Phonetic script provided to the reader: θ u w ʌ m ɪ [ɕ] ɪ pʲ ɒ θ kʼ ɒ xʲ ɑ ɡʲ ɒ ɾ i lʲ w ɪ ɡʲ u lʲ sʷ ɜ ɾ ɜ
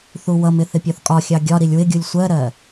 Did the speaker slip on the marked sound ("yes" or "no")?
yes